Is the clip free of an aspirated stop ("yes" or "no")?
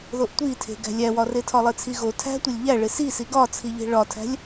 no